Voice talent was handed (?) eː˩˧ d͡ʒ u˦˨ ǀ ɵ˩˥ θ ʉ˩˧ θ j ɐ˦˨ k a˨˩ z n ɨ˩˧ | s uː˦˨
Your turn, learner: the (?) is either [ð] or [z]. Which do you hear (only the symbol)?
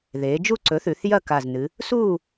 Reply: ð